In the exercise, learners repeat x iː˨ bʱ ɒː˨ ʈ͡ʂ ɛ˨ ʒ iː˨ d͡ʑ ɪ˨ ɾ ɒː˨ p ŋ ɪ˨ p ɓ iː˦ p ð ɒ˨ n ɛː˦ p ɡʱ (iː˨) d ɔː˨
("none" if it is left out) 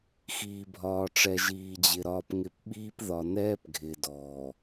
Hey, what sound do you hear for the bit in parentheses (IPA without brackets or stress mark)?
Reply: ɪː˨